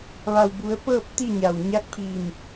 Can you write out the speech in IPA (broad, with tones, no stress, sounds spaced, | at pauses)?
ʋ a˩ w b u˩˧ ə̯ p ɤː˥˨ p̚ t̪ i˥˨ ɲ a˩ w ɲ a˧˥ k̚ pʰ i˧˩ m